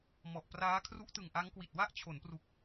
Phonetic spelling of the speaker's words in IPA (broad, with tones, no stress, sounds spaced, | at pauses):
m ɔ˨˩ ʔ p r aː˦˥ kʰ r u˦˥ ʔ t ɯ˨˩ ŋ ʔ a˦˥ ŋ k w i˨˩ t̚ w a˥˩ ʔ t͡ɕʰ o˩˦ n p r u˨˩ k̚